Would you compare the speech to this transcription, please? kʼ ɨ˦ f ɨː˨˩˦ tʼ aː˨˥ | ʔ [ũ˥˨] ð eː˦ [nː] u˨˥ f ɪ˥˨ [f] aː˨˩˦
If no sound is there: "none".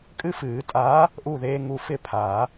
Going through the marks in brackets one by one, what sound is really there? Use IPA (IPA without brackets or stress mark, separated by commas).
u˥˨, ŋ, pʰ